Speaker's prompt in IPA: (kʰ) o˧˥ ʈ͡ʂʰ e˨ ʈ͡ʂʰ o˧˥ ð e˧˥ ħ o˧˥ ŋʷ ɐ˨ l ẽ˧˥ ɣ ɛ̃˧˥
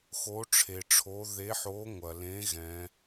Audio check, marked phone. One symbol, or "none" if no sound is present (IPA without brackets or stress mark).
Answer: x